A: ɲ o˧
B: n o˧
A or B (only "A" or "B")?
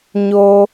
A